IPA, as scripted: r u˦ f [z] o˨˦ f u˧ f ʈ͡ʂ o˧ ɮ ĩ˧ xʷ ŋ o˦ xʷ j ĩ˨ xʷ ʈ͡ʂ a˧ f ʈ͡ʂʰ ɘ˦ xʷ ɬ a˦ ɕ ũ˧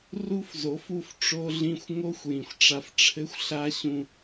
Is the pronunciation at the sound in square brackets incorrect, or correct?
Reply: correct